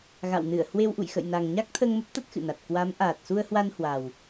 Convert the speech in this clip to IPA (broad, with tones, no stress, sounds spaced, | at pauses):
ɣ a̰˧˨ w n ɨ˧˩ ə̯ h w e˧ w ʔ ṵ˧˨ j x ə̰˧˨ j n a˨˩ ŋ ɲ a˦˥ k̚ t̪ʰ əː˧ ŋ m ə˦˥ p̚ t̪ a˦˥ t̚ x ɨ̰˧˨ n a˨˩ t̚ k w a˨˦ m ʔ aː˨˩ t̚ s u˧ ə̯ h w a˧ n h w a˨˩ w